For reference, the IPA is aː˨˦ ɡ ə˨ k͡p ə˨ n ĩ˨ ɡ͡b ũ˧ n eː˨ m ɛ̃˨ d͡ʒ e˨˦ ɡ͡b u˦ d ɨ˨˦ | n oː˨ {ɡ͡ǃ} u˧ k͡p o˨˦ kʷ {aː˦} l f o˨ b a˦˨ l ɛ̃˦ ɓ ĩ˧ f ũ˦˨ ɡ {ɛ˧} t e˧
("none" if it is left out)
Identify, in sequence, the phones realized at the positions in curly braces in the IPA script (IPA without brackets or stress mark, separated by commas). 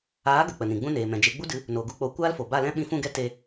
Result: ɡ, aː˦, ɛ˦